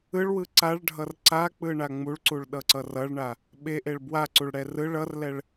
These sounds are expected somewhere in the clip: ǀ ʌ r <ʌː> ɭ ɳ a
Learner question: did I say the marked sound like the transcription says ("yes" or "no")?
no